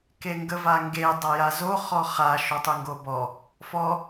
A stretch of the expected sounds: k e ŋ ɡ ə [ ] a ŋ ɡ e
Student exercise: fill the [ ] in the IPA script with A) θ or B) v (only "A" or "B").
B